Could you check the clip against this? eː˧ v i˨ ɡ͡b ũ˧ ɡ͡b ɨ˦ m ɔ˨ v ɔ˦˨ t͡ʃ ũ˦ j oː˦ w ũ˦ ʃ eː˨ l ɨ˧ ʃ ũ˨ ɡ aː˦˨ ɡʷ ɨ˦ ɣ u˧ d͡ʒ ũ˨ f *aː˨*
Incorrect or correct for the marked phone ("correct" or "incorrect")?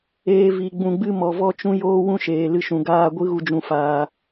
correct